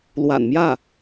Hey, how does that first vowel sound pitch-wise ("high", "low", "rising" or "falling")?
low